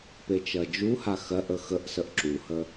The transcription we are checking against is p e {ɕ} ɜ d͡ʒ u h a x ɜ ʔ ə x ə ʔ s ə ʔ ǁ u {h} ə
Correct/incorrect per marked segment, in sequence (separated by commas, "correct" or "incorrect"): incorrect, correct